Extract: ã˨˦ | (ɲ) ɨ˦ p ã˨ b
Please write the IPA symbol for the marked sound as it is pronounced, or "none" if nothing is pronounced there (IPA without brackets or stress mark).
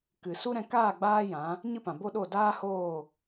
ɲ